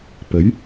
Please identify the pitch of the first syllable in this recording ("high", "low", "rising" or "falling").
rising